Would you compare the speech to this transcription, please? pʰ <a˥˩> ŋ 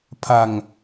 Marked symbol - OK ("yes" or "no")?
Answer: no